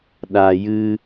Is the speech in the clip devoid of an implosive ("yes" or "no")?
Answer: no